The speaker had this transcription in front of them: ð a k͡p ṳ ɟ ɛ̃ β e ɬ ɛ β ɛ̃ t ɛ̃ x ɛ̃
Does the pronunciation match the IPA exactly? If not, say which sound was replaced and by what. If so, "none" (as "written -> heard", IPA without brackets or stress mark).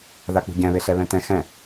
none